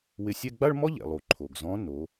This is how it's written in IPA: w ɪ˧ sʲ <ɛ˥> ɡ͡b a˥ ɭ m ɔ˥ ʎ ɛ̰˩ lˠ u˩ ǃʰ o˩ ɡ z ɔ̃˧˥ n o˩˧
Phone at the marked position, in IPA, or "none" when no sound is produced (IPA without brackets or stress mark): ɛ˥